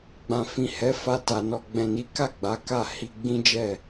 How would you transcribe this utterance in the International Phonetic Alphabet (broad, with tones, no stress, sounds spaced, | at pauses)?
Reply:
ɡ͡b ã˨ f ĩ˨ h ɛ˨˦ f a˧ t a˨ n ɔ˨ ɡ͡b ɛ̃˨ n i˨˦ k a˦˨ ɡ͡b a˨˦ k a˦˨ h i˧ ɡ͡b ĩ˦ d͡ʒ ɛ˦˨